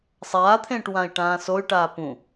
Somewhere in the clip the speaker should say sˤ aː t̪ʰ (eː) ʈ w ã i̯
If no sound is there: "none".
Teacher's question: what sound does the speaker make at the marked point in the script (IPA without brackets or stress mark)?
ẽː